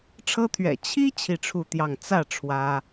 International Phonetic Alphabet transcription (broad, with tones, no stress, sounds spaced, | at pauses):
ʈ͡ʂʰ ɤ˦ t̪ʰ ɥ ɛ̰˨˩ t͡ɕʰ i˦ t͡ɕʰ i˥˨ ʈ͡ʂʰ u˥˨ t̪ j ɑ˥˨ ŋ t͡s ä˥˨ ʈ͡ʂʰ w ä˦